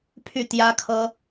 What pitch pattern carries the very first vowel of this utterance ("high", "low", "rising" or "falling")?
falling